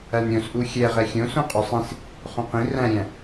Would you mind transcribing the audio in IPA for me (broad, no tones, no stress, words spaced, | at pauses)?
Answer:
ænɾʲõsʔu xʲɛʁɛ xʲõ sõqʼosˤĩs | χõqĩ ræ̃ɾʲæ̃